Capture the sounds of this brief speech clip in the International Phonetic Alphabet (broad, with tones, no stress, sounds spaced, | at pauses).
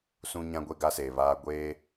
s ũ˦ ɲ ã˦ ɡʷ e˦ ɡ a˦ s eː˨ β aː˦ ɡʷ eː˦